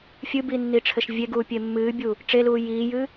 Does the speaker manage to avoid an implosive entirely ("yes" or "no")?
yes